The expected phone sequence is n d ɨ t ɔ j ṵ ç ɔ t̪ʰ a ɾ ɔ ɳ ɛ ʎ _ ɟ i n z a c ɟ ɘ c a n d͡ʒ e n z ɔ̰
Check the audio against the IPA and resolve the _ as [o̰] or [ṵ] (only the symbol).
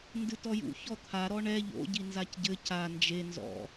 o̰